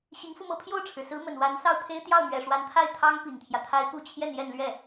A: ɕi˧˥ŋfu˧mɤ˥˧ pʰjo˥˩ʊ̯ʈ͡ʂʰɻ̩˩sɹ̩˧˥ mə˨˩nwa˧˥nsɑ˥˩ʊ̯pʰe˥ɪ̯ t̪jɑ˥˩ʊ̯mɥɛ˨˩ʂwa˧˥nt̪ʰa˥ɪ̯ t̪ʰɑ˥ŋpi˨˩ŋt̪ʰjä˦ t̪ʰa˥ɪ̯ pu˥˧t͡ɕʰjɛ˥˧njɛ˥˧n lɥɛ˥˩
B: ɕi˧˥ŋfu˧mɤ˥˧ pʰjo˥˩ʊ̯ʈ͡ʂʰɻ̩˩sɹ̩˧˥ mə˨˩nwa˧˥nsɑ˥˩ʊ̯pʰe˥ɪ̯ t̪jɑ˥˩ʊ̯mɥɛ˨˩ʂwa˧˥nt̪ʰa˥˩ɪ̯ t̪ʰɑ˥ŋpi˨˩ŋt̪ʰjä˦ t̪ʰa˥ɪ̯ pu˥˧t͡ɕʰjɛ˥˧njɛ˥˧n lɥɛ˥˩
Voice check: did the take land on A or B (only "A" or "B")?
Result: B